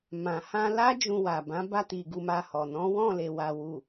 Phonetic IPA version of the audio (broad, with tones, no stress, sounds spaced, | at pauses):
m ã˨ h ã˧ l a˦ d͡ʒ ũ˧ w a˨ b ã˨˦ b a˧ t i˨ ɡ u˧ m a˧ h ɔ˨ n ɔ̃˨˦ w ɔ̃˦˨ l e˨ w a˨ w u˨